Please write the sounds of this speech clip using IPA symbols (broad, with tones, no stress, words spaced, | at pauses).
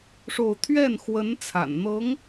ʂo˥˧ʊ̯ t̪ʰɥɛ˥˩nxwə˧˥n t͡sʰa̰˨˩n n̪ɤ˧˥ŋ